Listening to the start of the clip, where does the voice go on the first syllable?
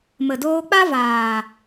low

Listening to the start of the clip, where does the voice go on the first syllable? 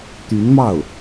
rising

